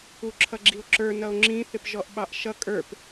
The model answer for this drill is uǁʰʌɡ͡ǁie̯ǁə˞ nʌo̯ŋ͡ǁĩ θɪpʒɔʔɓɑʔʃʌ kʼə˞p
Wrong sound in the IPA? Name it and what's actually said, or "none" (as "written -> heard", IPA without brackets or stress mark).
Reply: e̯ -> o̯